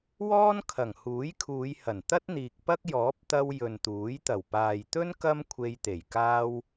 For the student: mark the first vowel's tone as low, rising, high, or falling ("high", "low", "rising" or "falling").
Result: high